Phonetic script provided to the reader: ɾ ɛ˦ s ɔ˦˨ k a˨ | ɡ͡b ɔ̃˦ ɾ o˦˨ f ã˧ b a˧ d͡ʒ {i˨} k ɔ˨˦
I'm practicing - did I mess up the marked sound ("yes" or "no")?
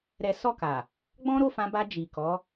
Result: no